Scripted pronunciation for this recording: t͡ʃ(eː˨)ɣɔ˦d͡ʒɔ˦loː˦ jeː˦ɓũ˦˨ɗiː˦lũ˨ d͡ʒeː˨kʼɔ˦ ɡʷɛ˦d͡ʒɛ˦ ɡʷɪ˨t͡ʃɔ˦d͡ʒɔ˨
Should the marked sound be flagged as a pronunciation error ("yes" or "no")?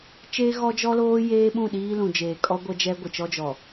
yes